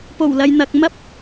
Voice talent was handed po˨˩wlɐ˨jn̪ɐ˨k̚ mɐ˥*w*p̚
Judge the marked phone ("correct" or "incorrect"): incorrect